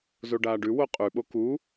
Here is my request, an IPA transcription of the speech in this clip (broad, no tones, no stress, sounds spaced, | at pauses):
z o ɖ aː ɖ ʉ w o qʼ ʉ ɓ o k u